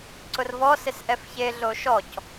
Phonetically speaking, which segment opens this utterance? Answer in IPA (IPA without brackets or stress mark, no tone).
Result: ǀ